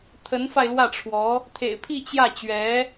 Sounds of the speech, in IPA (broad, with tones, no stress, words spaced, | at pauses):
t̪ʰə˧˥nfa˧ɪ̯lwä˥˩ʈ͡ʂʰwɔ˧˥ | t̪ʰḛ˨˩ɪ̯pʰi˥˧ t͡ɕjä˥˩ t͡ɕɥɛ˧˥